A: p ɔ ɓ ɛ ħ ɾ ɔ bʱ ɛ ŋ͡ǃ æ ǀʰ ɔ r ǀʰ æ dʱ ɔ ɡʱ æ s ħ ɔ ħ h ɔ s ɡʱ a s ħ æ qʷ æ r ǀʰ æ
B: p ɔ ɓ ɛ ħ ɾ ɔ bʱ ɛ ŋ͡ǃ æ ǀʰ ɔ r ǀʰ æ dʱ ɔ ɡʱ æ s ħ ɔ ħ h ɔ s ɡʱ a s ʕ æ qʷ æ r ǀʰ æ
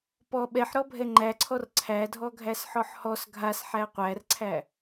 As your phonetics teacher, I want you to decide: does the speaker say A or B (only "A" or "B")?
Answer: A